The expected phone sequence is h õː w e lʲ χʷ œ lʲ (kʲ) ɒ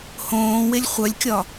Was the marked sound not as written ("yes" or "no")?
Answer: no